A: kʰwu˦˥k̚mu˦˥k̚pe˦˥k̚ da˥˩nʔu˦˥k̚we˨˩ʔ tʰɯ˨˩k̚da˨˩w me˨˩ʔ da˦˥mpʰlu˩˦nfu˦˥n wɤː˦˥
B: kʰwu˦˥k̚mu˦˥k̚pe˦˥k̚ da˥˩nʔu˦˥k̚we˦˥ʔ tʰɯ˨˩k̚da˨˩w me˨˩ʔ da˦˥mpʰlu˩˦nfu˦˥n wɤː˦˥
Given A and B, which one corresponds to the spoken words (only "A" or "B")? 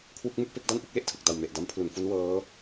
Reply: B